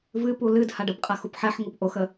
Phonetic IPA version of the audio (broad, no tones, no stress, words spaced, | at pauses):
vɨpu lɨd haɖəbqʼa xupħɛħŋup ʔoxə